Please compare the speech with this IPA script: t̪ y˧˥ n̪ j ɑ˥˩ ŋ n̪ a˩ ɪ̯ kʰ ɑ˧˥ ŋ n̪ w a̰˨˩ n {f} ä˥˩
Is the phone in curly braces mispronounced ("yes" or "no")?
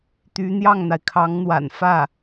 no